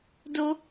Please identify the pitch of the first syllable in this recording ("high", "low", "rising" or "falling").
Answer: high